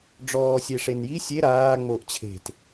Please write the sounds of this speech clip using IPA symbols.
ɖ͡ʐ ɔː sʲ e ʂ e n j i sʲ e ɾ aː ŋ͡m o ʔ t͡ɕʰ e̤ t

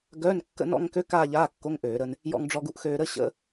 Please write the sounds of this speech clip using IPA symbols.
ɡ œː˧˥˧ n kː ə̰˥˧ n ɔ̰˥˧ ŋ k ø˧˥˧ k aː˥˧ ʎ aː˧˥˧ kː o˧˥˧ ŋ ʔ øː˧˩˧ ɾ ə˧ n | j ɔ̰˧ ŋ ɖ͡ʐ ɔ˧ ɡ u˧ ʔ x øː˧ ɾ ə˧˥˧ ɕ ə̰˧˥˧

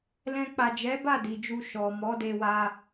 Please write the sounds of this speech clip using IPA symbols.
l ɛ̃˧ k͡p a˨ d͡ʒ ɛ˨˦ b a˦˨ d i˨ d͡ʒ u˧ ʃ ɔ˨ m ɔ˨˦ d e˧ w a˧

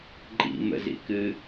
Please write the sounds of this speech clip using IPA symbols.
ǃʼ ḭ m ə̰ z ḭ k ɨ

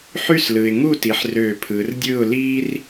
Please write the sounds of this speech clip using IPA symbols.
ħ y˥˨ s l ɯ˩ ɪ̯ ŋ u˥˨ t i˩˧ ħ r øː˧˩ pʰ ɯː˩˧ r dʲ ɯː˥˨ ʊ̯ l iː˥ r

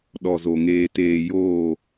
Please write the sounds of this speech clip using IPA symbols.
ɗ ɔ˨ z o˨ ŋ eː˨ t eː˨ j oː˦˨

